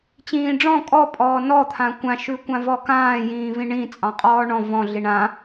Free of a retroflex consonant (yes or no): no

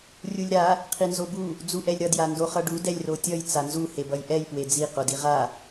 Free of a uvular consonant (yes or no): no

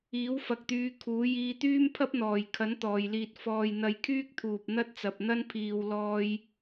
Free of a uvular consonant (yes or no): yes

